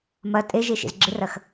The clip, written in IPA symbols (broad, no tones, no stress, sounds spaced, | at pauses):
m ɐ tʼ e ʒ e ʃ ḛ z ɡ͡ǁ ɪ r ɐ x